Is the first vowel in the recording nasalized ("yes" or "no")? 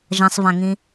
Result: yes